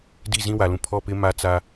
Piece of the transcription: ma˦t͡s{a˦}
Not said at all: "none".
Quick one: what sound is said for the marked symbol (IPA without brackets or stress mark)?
a˦